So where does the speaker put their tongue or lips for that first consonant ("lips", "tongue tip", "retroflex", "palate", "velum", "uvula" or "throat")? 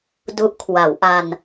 tongue tip